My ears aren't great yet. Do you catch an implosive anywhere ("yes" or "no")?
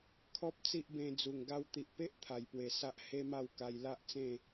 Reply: no